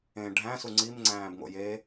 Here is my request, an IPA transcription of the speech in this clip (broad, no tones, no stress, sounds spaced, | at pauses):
ẽ ɖʱ æ̃ s u ŋ͡ǀ i m ŋ͡ǀ æ̃ː b ŋ o̰ j e